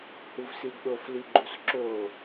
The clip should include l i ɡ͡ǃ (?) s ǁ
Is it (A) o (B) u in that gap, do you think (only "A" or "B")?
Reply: B